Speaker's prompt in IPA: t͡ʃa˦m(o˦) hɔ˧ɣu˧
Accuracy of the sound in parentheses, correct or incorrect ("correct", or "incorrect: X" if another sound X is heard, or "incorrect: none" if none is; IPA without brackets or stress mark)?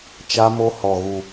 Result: correct